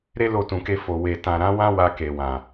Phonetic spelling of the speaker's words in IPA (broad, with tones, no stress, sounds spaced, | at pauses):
ɾ e˦ l o˧ t ũ˨ k e˧ f o˨ w e˨ t ã˨ ɾ ã˨˦ w ã˦ w a˧ k e˨ w ã˨